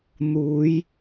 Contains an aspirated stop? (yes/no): no